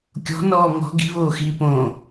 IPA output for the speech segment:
kʲ ɔ̤ n ɔː ŋ ɔ̤ ɡ i̤ β oː x iː p õ

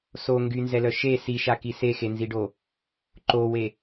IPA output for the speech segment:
s o ŋ ɡ y n z ɛ l œ ʃ e s i ʃ a k i s e x e n z i ɖ o | ǃ o w e

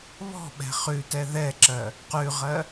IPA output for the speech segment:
β ɔ̤ ɓ ɛ̤ χ ʉ t ɛ ð ɛ ǁ ɜ | q ʉ ʁ ɜ

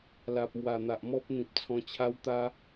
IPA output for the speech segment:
l a˨ p̚ m w a˨˩ n̪ a˨ ʔ m ɔ˦ p̚ n̪ ĩ˨ p̚ t͡sʰ ɔ̃˧ t͡ɕʰ a˦ w t̪ a˦

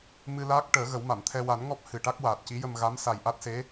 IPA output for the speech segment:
m ɨ˧ l aː˦˥ k̚ ʈ əː˨˩˦ ɣ ə˨˩˦ w m a˨˩˨ m t̪ʰ ɛ˧ w a˨˩˦ n ŋ ɔ˦˥ p̚ h ɨ˨˩ ʈ a˦˥ k̚ w aː˨˩ t̚ c i˧˥ j ə˧ m ɣ a˧˥ m s a˨˩ j ʔ a˦˥ t̚ s e˧˥

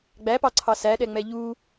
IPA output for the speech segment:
ɡ͡b æ p ɑ ǀʰ ɑ s æ ɗ ɛ ŋ͡m ɛ ʎ u

